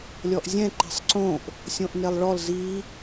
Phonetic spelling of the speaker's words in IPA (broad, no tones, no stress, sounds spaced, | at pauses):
lʲ ɔ ʔ zʲ ɛ̃ ǃ i̤ sˤ ǀ õ ʔ | sʲ õ ʔ n e lˠ ɭ ɔ l z i